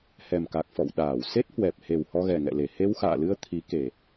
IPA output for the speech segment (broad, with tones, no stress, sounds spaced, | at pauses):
h ɛ˨˩ m k a˨˩ k̚ f ɔ̰˧˨ w ɗ aː˧˩ w s e˦˥ t̚ h w ɛ˨˩ p̚ h e˨˩ w h ɔ˧ ɣ ɛ˨˩ ŋ ɛ̰˧˨ l e˧˩ h e˧ w x a̰ː˧˨ l ɨ˧ ə̯ t̪ʰ i˨˦ k e˨˩